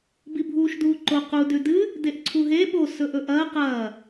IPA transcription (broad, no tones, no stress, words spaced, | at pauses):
bibʱuːʃduːǃo qu dʉdɨ | deʔǀʰuɦe ɓo sɵʔɵʔɐː qɐː